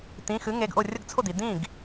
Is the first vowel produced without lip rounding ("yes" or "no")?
yes